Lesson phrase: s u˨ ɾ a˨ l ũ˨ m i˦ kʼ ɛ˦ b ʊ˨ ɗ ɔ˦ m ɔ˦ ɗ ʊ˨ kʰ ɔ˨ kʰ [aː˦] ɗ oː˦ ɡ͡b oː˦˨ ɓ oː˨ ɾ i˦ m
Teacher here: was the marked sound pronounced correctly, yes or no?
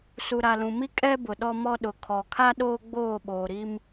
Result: no